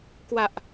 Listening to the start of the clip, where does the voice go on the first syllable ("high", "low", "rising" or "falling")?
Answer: low